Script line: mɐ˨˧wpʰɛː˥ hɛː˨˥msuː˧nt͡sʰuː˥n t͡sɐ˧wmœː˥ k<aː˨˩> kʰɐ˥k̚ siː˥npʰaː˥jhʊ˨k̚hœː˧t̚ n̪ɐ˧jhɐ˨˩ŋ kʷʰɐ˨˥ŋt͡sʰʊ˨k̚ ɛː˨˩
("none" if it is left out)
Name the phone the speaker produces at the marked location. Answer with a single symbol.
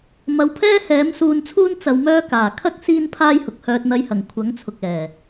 aː˨˩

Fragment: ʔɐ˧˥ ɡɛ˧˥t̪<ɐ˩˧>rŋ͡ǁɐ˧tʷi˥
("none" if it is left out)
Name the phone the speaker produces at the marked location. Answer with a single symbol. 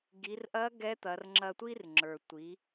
ɐ˩˧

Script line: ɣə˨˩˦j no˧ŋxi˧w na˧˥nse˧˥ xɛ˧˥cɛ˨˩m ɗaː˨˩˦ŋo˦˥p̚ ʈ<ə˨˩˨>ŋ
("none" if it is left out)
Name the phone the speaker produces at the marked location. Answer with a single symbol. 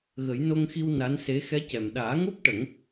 ə˨˩˦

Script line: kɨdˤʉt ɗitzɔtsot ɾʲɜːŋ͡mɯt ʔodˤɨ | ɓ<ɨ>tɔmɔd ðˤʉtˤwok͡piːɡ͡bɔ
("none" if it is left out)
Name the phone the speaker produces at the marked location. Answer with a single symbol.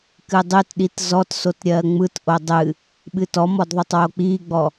ɨ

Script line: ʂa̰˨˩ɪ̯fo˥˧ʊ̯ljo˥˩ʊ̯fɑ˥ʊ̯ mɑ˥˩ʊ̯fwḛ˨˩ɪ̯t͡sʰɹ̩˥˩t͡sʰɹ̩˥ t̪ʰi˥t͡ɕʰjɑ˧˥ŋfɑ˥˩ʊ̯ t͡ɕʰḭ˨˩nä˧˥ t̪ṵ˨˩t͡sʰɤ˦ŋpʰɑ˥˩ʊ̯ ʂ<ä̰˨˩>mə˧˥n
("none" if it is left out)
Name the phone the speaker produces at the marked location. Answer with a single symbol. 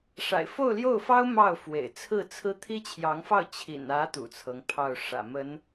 ä̰˨˩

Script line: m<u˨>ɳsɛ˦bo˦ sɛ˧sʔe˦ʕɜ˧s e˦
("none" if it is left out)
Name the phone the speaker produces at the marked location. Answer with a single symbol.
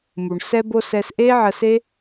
u˨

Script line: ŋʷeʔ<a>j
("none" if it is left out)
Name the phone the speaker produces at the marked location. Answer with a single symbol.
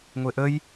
ə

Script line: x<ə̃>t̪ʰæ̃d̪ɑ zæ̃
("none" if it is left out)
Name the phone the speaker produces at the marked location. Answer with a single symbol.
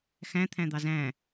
æ̃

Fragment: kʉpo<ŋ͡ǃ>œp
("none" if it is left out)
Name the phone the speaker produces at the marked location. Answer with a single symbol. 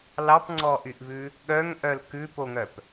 ŋ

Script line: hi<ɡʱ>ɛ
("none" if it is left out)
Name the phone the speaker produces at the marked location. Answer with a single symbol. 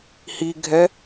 ɡʱ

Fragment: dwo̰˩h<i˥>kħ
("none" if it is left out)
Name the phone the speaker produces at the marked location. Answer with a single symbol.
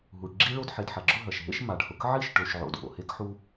e˥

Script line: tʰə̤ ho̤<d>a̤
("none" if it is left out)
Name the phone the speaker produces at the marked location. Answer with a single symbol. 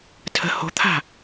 t̪ʰ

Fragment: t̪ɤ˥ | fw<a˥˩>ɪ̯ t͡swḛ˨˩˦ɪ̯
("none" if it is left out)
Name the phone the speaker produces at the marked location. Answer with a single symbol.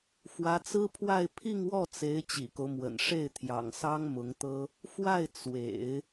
a˥˩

